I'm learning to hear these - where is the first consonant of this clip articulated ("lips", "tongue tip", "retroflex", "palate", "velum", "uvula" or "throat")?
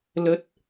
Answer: tongue tip